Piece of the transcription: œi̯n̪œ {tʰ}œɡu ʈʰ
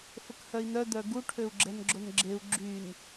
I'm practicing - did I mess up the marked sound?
yes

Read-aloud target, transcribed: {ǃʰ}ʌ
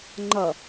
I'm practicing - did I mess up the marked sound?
yes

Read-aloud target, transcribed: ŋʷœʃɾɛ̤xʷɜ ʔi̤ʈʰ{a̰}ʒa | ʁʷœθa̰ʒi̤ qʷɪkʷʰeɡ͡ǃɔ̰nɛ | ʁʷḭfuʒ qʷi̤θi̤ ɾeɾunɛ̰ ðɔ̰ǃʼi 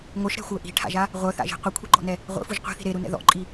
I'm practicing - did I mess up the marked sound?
no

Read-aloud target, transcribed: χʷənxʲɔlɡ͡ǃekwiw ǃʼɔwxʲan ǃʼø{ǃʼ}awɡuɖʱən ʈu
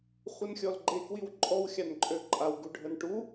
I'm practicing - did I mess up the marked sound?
no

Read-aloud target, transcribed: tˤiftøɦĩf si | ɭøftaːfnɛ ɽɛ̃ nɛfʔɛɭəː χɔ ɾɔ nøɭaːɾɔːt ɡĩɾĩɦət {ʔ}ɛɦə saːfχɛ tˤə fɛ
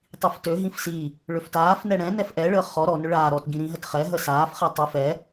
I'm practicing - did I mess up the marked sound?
yes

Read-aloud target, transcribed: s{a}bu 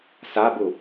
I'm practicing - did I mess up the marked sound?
no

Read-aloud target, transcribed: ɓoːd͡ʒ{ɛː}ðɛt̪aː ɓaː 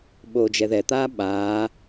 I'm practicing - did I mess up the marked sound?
yes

